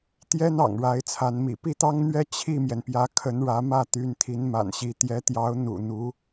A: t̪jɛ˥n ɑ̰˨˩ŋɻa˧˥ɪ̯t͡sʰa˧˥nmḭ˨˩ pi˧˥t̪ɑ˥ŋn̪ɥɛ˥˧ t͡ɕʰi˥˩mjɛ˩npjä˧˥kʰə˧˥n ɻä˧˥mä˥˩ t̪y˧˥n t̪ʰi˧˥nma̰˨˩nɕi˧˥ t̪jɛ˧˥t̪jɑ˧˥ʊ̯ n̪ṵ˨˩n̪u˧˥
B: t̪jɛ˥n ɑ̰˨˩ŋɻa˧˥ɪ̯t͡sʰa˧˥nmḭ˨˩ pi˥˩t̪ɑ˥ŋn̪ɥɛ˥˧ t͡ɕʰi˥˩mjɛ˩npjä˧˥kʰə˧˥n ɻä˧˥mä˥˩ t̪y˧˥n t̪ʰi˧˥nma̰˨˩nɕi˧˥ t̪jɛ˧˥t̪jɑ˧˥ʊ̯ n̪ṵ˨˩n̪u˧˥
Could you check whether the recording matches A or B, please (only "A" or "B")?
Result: B